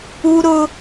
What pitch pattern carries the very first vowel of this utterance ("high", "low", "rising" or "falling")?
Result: high